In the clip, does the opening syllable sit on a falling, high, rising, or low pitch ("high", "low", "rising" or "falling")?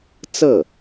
falling